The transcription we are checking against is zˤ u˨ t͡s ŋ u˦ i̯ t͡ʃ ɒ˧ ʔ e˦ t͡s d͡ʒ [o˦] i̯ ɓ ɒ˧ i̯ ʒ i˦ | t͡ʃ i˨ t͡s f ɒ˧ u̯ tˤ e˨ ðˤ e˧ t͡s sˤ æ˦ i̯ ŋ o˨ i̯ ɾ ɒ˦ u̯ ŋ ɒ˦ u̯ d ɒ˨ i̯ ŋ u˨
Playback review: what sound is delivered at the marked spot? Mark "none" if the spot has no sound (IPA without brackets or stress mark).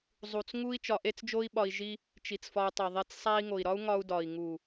o˦